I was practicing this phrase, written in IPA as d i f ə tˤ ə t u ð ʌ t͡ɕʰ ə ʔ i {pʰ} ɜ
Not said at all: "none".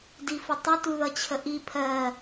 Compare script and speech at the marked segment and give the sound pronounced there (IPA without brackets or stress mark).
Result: pʰ